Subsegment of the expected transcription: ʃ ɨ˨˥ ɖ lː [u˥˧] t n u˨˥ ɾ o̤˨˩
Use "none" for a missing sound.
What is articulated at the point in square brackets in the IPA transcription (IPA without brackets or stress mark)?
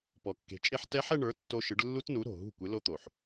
u˦˥